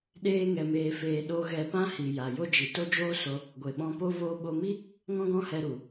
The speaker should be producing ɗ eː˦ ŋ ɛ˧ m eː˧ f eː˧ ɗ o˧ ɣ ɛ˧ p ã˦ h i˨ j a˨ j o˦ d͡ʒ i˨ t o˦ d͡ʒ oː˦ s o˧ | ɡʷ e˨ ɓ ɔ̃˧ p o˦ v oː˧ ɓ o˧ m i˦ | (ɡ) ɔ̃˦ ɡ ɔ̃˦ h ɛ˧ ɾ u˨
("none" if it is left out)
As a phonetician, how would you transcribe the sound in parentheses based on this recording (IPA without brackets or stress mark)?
ŋ